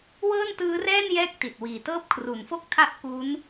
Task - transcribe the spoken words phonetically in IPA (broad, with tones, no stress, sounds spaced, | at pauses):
w ɤː˥˩ n t ɯː˦˥ r ɛː˥˩ n j ɛː˦˥ k̚ t i˨˩ t̚ w iː˨˩ t ɤː˥˩ p̚ kʰ r u˩˦ n f o˥˩ k̚ tʰ a˦˥ ʔ k u˦˥ n